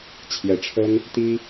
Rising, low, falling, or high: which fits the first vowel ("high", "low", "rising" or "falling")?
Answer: rising